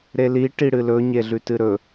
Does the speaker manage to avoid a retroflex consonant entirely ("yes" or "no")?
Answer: no